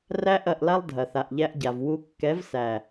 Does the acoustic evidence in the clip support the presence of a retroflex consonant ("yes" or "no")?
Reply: no